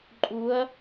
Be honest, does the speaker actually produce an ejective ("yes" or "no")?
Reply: yes